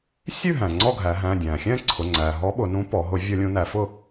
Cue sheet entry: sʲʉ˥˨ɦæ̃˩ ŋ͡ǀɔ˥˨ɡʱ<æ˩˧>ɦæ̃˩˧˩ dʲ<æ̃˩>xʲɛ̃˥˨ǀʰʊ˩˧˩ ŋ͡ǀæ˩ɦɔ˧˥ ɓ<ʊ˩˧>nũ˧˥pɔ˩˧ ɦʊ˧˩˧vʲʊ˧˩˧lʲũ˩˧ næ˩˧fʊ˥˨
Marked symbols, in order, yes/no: yes, yes, yes

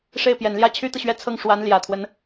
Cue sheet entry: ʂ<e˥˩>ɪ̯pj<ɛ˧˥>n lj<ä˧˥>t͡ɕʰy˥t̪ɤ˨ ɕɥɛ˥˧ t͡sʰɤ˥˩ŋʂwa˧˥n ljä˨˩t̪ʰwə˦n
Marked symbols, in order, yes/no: yes, no, no

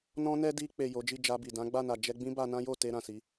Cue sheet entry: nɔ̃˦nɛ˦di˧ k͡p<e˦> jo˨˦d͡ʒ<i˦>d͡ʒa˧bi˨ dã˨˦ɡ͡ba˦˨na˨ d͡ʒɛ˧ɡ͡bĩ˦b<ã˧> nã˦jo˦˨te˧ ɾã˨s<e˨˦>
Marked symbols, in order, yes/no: no, no, no, no

